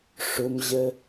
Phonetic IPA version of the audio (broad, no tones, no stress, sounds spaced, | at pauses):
ʂ ʊ m ʑ ə